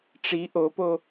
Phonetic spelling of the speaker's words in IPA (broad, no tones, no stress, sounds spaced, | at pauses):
ʈ͡ʂ i ʔ o p o